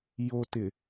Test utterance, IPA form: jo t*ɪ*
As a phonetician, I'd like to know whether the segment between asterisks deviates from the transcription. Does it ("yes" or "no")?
no